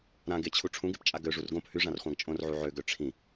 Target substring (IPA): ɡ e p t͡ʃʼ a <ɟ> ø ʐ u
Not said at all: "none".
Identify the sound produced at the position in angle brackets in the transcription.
ɡ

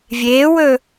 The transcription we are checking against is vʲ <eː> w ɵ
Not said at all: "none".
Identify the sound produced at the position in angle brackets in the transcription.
eː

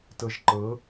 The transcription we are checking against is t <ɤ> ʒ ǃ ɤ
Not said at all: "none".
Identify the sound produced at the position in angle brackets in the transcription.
ɤ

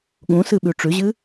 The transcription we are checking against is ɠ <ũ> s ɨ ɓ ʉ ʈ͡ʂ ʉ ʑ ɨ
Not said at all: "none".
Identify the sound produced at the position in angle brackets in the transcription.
ũ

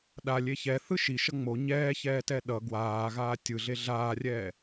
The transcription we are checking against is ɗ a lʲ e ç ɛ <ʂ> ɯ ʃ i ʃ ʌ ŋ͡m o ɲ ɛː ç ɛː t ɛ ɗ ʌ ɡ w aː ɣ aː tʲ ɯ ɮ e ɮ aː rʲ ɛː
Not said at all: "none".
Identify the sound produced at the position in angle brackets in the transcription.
θ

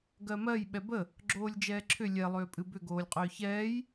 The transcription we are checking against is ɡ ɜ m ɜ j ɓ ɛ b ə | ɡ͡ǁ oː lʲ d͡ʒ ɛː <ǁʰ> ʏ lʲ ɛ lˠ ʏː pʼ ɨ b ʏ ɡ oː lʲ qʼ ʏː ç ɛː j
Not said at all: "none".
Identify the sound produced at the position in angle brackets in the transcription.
ǁʰ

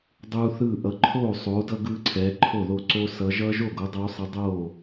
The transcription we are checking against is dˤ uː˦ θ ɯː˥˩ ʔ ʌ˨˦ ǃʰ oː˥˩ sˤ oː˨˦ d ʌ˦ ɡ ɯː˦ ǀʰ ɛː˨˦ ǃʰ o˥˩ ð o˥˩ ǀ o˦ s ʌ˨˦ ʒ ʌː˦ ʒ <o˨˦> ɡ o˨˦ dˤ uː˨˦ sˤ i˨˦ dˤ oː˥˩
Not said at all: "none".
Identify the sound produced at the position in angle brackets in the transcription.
o˥˩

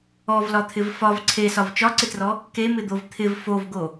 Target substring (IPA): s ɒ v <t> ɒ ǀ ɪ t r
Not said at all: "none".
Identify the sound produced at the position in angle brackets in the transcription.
t͡ʃ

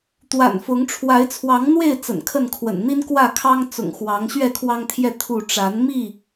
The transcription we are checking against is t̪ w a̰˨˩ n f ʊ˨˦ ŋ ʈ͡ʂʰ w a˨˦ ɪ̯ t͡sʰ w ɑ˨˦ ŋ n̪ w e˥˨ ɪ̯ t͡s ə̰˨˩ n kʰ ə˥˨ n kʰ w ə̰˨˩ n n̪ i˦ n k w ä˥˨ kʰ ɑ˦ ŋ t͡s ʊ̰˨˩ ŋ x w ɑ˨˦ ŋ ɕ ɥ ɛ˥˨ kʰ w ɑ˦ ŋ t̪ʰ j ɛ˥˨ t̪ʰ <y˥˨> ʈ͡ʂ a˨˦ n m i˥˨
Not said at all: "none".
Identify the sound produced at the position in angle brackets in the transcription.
u˥˨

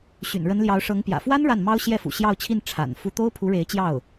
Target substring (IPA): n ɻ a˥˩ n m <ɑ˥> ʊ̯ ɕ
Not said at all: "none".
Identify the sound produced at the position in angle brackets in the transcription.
ɑ˥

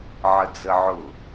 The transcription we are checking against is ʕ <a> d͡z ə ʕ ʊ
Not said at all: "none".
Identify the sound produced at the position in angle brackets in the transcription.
ə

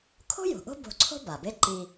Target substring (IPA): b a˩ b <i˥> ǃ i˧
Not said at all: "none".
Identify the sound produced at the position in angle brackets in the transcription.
e˥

